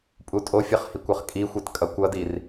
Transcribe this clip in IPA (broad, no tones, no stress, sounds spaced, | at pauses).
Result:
pʼ u tʼ o fʲ ʌ χ h i kʷ ʌ χ kʼ i xʷ e t kʼ ʌ kʷ ʌ d i r